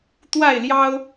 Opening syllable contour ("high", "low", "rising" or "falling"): falling